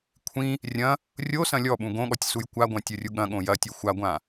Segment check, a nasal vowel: present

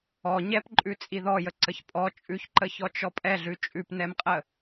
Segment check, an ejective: present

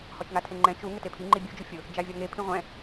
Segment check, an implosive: absent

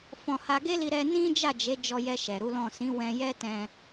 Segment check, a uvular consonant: absent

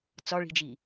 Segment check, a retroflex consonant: present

